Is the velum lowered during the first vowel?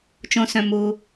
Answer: yes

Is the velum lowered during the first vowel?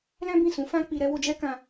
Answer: yes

